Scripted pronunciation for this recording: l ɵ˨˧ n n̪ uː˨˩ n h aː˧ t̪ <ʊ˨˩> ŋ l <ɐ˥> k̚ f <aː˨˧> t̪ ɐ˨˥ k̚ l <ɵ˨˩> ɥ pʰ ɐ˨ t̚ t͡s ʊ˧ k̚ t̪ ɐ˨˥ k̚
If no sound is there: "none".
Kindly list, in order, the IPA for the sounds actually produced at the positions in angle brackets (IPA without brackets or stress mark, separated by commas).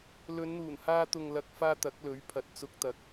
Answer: ʊ˨, ɐ˨, aː˧, ɵ˨˥